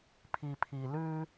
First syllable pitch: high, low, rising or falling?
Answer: low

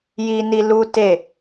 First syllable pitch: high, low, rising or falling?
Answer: high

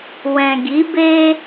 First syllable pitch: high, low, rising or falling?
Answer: low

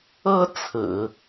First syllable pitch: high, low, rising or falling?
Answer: high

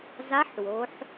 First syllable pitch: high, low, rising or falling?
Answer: rising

